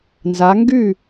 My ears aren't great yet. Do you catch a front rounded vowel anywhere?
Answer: yes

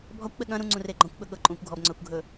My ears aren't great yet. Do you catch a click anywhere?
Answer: yes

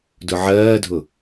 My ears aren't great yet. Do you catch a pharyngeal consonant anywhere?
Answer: yes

